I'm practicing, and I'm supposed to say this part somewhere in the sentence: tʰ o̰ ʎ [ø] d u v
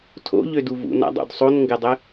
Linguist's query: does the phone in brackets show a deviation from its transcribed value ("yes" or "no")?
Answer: no